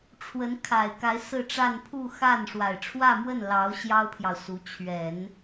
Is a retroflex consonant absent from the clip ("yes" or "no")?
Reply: no